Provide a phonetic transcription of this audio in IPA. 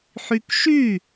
ħ y k ʃ y

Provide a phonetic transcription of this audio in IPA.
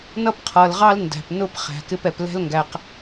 n ʌ˦ p qʰ ʌ˨ l ʁ ɑ˦ l n d æ̤˨ p n ʊ˦ p χ æ̤˨ k ɪ˧ p ɛ˨ p l ɛ̤˦ l ŋ ɡ æ˧ q

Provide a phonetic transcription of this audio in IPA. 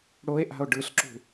ɽ o e̯ ʔ a̤ o̯ ɖ ɯ ɬ ǁ ṳ

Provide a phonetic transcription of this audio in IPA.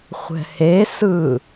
χʷ ɛ̤ h e s ɯ

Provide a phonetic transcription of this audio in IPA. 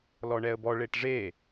l ɔ ɳ ɛ ə̯ b ɔ ɭ e ʈ ʐ e

